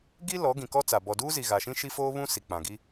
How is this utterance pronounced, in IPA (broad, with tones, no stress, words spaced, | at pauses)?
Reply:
ɡi˦ lɔ˨˦ ɡĩ˨kɔ˦t͡sa˨ bɔ˨duː˦zi˨ ɣa˨ʃĩ˦ʃi˦foː˦ βũ˦ si˨k͡pã˨ɡi˦